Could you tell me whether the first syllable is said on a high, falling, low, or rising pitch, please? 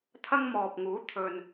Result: high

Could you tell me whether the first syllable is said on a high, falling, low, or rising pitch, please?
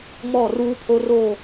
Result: falling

